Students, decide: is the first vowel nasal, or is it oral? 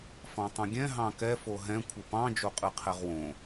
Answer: nasal